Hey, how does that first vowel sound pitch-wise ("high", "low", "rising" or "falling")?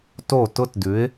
falling